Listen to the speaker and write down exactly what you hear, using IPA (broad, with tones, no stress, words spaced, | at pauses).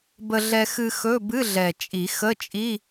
bə˧ɮɛ˧ xɨ˧ xɵ˧˥˧ bɨ˧˥˧ɮɛ˨˩ t͡ʃʼi˨˩˦xə˧˥˧t͡ʃʼi˧˥˧